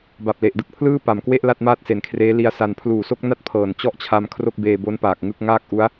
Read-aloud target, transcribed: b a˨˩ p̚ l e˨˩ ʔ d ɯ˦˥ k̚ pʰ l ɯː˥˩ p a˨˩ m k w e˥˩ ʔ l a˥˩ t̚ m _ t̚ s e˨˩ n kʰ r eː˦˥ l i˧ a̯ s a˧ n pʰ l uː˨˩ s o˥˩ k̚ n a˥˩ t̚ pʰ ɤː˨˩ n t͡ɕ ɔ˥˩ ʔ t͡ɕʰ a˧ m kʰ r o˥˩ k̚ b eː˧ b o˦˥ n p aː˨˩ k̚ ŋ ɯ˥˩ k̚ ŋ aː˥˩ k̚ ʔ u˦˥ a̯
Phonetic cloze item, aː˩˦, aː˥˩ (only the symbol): aː˥˩